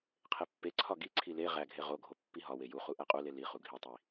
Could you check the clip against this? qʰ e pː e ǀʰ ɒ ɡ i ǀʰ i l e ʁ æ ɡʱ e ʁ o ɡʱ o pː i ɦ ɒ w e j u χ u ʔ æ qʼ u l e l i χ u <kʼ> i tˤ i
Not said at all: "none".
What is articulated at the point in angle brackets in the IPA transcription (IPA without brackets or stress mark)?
ɡʱ